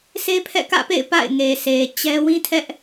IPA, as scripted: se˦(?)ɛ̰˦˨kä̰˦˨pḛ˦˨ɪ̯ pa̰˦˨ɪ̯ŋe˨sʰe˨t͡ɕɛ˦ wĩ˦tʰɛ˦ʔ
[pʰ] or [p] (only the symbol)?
pʰ